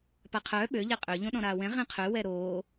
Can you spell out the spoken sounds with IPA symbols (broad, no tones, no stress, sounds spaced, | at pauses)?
p a qʰ œː ɓ ø ʎ e qʼ ø ʎ õ ɗ ɔ̃ ɾ aː w ɛ̃ ʁ ẽ qʰ ø w ɛ ɾ oː